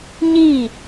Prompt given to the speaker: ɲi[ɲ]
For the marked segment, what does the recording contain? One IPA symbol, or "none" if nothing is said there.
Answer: none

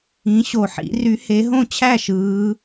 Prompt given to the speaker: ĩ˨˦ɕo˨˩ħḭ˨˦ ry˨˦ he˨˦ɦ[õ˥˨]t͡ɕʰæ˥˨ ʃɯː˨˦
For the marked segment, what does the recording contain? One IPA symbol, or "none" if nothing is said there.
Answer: õ˥˨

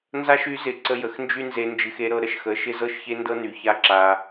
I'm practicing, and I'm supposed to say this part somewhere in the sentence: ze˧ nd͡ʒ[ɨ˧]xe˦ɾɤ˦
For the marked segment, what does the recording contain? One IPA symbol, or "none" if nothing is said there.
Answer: ɨ˧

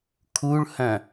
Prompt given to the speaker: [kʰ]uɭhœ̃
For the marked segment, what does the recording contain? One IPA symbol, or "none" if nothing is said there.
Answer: kʰ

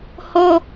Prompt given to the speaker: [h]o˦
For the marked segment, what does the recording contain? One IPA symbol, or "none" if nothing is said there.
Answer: h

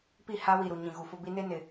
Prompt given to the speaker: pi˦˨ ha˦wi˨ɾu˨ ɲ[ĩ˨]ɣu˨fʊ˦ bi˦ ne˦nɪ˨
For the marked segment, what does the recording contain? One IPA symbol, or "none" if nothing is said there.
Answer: ĩ˨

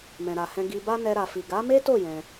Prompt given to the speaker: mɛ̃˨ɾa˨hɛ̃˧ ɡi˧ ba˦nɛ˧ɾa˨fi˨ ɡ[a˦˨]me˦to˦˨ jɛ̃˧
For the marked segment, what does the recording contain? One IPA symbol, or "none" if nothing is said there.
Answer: a˨˦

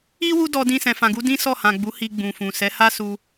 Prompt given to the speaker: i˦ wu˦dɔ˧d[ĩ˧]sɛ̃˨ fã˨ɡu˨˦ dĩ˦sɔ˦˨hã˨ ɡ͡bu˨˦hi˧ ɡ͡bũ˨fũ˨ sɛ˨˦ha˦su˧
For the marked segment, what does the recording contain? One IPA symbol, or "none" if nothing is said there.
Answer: ĩ˧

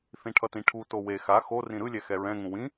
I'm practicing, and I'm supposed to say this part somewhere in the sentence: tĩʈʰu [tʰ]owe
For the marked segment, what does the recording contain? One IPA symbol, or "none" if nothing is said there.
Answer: t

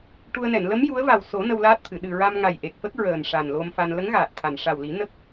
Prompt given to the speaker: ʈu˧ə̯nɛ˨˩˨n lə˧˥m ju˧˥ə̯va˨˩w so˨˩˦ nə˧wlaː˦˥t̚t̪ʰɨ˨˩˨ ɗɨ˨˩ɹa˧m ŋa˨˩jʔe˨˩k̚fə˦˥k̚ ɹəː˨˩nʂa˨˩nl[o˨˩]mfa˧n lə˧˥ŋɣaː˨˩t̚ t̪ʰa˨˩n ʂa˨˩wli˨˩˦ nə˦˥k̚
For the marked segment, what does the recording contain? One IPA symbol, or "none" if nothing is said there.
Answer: o˧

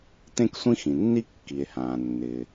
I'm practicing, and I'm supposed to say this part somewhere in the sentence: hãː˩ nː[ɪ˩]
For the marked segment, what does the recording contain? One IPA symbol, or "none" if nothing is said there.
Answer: ɪ˩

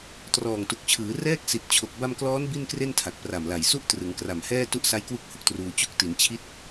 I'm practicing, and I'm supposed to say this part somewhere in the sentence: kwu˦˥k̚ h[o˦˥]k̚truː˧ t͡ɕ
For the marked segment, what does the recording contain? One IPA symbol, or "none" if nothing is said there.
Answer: o˨˩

